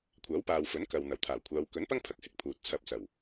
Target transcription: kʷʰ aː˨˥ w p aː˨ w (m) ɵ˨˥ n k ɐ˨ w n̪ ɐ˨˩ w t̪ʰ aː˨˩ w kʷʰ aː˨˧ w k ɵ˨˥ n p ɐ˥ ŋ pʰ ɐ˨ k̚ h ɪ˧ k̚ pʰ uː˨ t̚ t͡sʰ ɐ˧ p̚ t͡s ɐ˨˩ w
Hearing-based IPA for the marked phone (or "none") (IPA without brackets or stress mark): f